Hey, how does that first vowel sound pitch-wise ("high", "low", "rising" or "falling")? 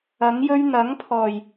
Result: rising